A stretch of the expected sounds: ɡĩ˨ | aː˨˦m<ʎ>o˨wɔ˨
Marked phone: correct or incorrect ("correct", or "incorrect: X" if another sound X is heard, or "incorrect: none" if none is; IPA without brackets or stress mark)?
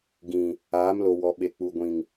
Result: incorrect: l